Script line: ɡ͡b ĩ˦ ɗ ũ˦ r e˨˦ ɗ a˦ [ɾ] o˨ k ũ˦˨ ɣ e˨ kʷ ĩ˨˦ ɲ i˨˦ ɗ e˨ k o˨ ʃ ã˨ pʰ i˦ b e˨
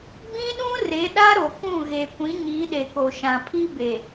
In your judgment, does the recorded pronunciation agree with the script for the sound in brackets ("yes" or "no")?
yes